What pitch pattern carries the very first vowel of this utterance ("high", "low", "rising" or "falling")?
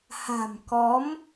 low